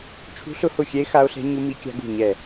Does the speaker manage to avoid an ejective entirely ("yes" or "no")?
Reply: yes